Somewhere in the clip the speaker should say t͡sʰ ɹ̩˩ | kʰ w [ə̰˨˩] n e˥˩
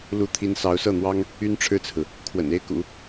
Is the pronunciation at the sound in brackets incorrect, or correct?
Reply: correct